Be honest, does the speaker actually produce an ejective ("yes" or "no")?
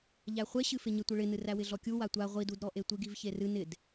no